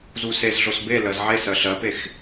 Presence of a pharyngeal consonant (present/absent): present